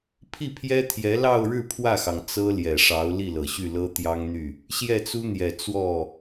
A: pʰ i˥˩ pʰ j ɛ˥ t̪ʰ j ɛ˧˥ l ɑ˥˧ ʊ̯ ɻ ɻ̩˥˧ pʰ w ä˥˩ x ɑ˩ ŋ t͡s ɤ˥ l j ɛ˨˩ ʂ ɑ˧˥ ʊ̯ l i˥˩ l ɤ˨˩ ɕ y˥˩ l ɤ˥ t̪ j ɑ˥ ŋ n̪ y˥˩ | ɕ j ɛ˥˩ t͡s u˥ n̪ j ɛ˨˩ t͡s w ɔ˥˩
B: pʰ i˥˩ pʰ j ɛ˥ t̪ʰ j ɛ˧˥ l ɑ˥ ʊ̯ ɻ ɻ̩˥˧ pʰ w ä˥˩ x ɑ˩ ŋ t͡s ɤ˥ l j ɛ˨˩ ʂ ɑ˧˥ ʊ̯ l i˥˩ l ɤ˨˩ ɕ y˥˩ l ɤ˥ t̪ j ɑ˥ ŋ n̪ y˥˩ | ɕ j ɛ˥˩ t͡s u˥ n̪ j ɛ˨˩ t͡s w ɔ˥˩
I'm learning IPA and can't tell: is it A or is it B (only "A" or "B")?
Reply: A